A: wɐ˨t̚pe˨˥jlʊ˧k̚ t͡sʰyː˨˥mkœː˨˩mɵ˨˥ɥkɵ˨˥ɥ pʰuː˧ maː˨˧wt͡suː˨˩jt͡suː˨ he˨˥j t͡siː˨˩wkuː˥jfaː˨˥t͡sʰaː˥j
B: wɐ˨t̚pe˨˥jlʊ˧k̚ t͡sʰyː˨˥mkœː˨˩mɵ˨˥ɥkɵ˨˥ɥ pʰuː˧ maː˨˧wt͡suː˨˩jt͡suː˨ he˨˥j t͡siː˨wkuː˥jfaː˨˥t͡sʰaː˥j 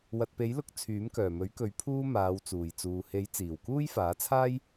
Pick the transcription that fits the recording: A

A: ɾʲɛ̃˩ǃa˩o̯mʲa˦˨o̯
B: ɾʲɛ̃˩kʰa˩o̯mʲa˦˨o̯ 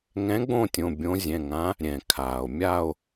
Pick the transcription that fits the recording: B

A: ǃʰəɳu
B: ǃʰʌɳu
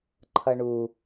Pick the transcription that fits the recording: B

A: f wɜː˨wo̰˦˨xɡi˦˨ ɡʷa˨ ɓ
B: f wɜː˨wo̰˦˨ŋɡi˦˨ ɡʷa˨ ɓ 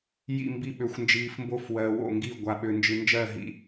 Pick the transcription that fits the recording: B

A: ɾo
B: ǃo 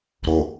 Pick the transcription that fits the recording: A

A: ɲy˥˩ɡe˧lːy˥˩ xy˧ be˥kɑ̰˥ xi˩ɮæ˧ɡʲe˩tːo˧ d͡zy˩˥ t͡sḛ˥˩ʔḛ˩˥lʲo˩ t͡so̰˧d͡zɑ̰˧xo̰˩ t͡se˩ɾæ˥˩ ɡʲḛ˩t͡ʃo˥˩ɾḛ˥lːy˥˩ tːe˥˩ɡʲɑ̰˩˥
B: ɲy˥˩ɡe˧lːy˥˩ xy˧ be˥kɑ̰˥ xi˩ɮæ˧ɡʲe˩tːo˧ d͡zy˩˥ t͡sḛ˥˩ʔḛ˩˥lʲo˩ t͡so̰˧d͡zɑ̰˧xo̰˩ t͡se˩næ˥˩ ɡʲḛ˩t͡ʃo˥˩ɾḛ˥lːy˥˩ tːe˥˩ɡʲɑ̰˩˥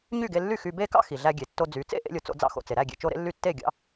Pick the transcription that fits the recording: A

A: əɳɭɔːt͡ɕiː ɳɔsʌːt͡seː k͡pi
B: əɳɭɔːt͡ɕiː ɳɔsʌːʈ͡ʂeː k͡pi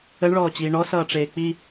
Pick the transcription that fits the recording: B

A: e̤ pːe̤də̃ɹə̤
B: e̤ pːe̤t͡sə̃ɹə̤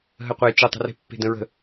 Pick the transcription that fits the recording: A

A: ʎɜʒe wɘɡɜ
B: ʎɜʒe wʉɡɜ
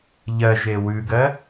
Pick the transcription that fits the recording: B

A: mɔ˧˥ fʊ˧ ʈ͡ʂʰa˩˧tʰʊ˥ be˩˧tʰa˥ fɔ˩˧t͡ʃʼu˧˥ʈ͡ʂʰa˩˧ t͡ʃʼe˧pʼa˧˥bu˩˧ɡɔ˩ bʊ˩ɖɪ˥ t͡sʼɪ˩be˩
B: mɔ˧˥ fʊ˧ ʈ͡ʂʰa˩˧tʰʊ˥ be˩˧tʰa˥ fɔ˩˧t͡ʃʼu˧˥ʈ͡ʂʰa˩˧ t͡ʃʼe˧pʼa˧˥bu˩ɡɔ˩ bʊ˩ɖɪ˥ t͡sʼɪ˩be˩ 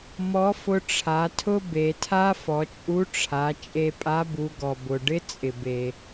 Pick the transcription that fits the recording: A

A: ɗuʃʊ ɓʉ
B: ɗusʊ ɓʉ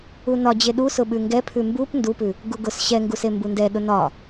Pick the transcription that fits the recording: B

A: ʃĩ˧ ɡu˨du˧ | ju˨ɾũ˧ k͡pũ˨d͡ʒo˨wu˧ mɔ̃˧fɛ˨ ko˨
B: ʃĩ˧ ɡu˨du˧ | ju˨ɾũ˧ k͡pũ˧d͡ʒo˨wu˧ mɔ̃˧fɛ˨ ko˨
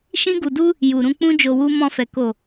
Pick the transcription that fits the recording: B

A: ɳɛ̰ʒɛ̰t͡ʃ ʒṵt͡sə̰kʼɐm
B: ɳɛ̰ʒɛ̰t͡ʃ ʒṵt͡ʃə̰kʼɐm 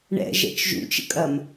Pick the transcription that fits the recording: B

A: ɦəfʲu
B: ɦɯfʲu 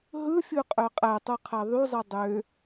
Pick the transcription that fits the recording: B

